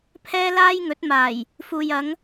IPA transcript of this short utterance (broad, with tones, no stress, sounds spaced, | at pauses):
pʰ ɛː˥ l aː˥ j ŋ ɵ˨˥ t̚ m aː˨˩ j | f uː˨ j ɐ˨˧ ŋ